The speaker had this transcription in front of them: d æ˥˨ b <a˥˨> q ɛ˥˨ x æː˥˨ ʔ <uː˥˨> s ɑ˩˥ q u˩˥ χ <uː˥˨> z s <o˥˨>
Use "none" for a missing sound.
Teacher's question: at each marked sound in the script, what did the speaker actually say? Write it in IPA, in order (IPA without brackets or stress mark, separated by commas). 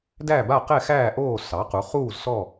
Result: a˥˨, oː˥˨, uː˥˨, ɔ˥˨